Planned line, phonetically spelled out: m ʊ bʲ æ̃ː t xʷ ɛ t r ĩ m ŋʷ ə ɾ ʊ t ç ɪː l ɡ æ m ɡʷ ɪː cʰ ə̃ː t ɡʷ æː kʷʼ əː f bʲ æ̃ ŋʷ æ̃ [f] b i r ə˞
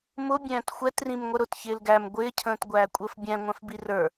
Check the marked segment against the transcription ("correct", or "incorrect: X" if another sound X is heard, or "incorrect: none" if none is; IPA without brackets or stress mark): correct